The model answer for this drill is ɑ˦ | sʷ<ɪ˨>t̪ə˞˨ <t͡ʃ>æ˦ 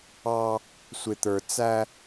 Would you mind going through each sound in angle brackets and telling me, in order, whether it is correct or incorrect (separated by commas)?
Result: correct, incorrect